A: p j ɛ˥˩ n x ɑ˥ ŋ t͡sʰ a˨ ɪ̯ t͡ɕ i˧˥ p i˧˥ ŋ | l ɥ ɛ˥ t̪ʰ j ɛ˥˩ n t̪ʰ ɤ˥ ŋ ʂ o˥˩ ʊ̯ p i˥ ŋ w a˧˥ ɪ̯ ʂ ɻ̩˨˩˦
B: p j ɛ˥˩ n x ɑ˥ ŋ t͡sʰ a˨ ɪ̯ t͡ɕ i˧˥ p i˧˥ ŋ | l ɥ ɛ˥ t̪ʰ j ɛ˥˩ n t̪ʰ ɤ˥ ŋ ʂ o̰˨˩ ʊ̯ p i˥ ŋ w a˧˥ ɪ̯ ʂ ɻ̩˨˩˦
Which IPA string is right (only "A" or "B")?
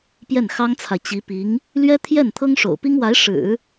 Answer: B